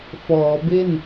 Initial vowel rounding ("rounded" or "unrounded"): rounded